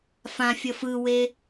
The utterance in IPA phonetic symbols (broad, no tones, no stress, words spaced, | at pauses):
fãfʲʌ fɯwe